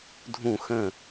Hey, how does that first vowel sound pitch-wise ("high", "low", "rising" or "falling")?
falling